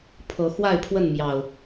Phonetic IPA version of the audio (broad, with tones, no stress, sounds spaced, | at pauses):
pʰ ɤ˨˦ x w a˥˨ ɪ̯ pʰ w ə˥˨ n m j ɑ˨˩ ʊ̯